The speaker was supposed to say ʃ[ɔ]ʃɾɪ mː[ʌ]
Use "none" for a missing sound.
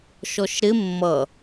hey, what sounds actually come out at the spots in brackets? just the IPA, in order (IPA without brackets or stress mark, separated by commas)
ɔ, ʌ